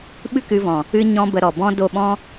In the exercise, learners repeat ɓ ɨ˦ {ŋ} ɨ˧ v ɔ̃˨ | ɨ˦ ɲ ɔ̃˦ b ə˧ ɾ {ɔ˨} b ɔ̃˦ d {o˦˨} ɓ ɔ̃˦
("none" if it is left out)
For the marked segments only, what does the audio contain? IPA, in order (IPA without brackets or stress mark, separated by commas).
k, ɔ˨, o˦˨